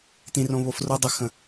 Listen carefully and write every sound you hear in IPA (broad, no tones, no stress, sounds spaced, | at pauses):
t ĩ r õ β o f r o dˤ ɵ x ə̃